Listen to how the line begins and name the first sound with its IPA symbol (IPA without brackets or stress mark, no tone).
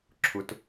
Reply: ǁʰ